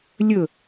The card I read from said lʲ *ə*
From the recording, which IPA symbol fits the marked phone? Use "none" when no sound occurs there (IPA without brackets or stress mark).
ə